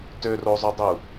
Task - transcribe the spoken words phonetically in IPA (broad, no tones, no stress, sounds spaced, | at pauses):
t ø r o zˤ ø dˤ i u̯